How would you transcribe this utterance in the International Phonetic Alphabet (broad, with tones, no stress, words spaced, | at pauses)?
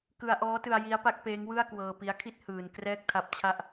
kɯ˧a̯ʔɔː˦˥tɯ˧a̯ ji˦˥a̯pa˦˥k̚peː˦˥ŋwɯ˥˩a̯ kwɤː˧pi˦˥a̯kʰi˥˩t̚ hɯː˧n krɛː˥˩k̚tʰa˦˥p̚t͡ɕʰa˥˩ʔ